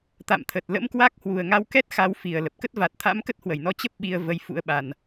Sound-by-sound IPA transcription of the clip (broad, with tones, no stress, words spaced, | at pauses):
t̪a̰˧˨mt̪ʰə˨˩t̚ lə̰˧˥mkwa˦˥k̚hwu˨˩ə̯ ŋa˧wkɛ˦˥t̚ xa˧w fi˨˩ə̯ lə˨˩p̚kə˦˥t̚va˨˩t̚t̪ʰa̰˧˥m kə˦˥t̚hwə˧˩jnɔ˧ t͡ɕə˦˥p̚ ɓi˧ə̯ və˧j fṵ˧˥ə̯ɓa˨˩n